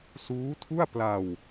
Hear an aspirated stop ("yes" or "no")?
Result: yes